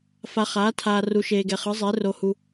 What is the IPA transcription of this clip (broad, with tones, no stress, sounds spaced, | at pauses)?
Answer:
f a˧ χ aː˨˥ tʰ aː˧ r u˧ ʃ eː˧ ɡ ɛ˧ χ ɯ˨˥ zˤ e˨˥ r o˧ h u˧